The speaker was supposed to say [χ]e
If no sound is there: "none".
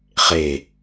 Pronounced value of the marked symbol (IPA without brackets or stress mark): χ